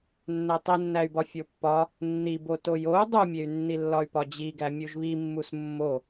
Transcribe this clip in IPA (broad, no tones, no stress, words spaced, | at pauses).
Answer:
nːætˤinːæy̯bɒ fʲopːɒ | nːibo tojou̯ dˤumʲey̯nːilːɒy̯ pɒd͡ʑiɡæ mʲuʒβimːus mːo